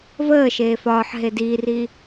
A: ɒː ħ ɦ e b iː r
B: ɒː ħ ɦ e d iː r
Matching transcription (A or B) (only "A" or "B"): B